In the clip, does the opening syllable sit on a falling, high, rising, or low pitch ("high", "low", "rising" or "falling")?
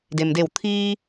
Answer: low